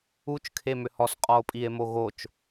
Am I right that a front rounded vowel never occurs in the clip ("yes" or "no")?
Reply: no